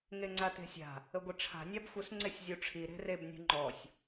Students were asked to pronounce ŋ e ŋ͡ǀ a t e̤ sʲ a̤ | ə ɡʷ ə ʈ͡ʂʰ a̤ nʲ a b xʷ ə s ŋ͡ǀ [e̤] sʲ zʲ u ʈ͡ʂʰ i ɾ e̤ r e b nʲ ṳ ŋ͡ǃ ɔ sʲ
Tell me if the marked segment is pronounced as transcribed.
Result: no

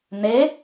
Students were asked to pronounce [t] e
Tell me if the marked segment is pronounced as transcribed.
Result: no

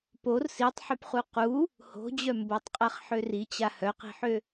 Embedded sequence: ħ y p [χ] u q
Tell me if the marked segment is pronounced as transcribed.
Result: yes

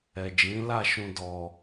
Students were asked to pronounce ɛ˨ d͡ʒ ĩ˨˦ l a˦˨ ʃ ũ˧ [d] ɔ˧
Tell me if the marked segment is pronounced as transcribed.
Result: yes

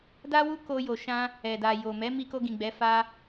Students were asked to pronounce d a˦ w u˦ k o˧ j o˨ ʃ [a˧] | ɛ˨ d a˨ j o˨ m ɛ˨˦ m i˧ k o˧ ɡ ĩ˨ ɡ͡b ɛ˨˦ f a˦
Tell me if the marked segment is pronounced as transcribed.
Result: no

